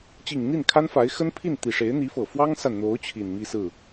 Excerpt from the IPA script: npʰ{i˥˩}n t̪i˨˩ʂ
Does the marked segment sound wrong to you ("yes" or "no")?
no